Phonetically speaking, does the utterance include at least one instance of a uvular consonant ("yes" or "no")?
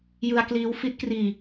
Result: no